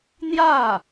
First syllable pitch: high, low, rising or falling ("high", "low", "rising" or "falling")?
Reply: falling